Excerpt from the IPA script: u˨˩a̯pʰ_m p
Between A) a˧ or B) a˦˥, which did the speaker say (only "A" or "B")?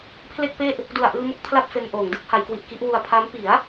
B